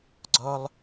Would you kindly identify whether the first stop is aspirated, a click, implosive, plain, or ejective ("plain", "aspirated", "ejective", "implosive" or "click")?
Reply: click